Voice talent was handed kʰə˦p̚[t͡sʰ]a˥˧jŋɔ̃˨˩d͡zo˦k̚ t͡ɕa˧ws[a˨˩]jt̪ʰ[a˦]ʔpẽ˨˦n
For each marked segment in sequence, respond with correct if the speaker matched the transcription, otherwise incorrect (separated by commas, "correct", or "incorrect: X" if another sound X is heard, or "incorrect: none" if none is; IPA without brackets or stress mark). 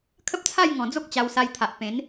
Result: correct, incorrect: a˧, incorrect: a˨